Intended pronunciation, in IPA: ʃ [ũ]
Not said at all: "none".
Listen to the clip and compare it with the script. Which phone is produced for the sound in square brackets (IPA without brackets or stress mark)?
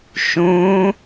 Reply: ũ